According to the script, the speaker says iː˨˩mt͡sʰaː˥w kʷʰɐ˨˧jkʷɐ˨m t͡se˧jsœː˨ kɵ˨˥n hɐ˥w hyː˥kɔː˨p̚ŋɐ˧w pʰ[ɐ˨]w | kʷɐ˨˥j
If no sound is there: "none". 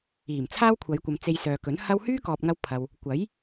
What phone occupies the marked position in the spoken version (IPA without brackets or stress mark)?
ɐ˨